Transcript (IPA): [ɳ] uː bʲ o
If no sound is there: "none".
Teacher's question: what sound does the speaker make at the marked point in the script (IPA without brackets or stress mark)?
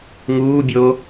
ŋ